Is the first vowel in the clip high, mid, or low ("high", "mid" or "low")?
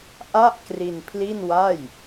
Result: low